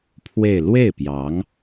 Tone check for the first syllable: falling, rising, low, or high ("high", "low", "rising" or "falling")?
falling